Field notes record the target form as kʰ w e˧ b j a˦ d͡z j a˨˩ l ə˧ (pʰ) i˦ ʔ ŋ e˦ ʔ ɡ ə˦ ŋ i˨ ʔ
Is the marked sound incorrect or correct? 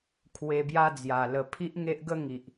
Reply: correct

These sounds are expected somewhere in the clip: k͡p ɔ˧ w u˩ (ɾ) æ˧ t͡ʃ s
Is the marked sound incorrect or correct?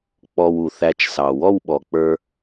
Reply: incorrect: θ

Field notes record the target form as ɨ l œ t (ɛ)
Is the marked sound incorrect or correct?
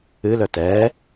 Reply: correct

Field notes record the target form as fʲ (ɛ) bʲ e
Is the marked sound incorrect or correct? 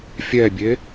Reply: correct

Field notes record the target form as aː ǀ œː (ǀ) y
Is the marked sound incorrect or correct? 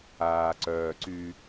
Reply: correct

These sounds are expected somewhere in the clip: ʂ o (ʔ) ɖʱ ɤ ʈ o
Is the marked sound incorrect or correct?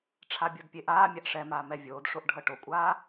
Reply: correct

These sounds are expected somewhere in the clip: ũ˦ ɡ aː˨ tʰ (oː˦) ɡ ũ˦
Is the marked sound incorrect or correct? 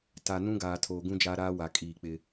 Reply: incorrect: oː˨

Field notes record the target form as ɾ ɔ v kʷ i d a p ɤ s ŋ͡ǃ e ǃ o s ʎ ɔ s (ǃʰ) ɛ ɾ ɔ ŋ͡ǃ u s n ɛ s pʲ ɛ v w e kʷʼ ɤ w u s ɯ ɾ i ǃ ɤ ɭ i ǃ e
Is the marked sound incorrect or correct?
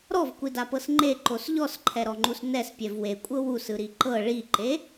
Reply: correct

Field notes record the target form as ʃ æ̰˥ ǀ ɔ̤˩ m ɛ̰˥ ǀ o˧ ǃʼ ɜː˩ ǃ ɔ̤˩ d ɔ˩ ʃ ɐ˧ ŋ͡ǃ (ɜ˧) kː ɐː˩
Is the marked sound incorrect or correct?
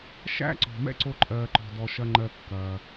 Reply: correct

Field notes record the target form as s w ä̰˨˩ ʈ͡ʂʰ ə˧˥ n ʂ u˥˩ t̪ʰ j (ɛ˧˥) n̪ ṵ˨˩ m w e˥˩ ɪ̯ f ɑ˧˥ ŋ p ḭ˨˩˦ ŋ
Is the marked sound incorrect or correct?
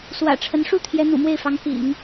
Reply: correct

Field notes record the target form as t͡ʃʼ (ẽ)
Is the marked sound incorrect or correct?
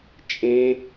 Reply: correct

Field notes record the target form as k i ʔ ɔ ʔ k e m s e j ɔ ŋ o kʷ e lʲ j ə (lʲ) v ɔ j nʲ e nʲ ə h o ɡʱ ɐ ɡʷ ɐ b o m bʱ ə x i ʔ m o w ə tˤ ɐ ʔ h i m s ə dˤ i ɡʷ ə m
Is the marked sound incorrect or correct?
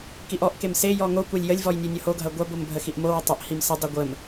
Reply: correct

